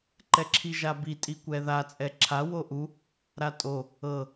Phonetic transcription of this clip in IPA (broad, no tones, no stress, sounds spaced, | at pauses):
ǃ ɛ ǁʰ i ʒ a b i tʼ i kʷ ɛ ð a t͡sʼ ɛ ǁʰ a w o ʔ u | ɾ a tʼ o | ɤ